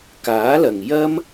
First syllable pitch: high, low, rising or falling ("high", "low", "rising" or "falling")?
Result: rising